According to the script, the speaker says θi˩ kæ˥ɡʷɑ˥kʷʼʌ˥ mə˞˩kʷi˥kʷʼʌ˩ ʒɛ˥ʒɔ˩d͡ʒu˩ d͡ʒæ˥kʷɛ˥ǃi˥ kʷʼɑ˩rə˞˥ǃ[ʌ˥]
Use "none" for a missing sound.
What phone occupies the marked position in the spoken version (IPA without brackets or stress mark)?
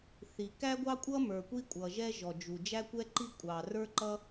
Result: ʌ˥